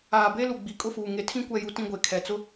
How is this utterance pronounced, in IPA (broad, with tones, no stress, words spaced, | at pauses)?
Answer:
aː˨be˦ lu˨ɡ͡bi˨kʼʊ˦˨fuː˨ ŋe˨tʰĩ˦ kʷɛ˨ju˨tĩ˨ ɡʷe˨kʰɛ˨t͡sʊ˦